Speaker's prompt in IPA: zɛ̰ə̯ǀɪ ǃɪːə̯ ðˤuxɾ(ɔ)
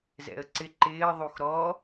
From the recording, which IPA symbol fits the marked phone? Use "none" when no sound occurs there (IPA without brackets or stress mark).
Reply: ɔ